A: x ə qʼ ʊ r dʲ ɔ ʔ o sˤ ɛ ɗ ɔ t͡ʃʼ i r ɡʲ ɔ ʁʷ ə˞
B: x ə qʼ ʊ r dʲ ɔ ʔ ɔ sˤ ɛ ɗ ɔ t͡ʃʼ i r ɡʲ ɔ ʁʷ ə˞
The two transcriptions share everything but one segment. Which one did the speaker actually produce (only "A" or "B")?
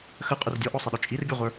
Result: B